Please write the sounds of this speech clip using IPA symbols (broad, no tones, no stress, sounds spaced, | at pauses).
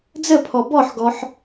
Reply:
d͡z ə pʰ ɔ b ɔ ħ ɡ ɔ ħ